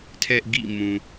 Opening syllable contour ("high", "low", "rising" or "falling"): high